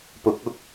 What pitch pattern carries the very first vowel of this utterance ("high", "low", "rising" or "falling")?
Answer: rising